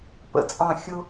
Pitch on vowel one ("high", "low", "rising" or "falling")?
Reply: rising